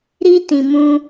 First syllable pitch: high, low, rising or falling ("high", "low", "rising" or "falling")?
high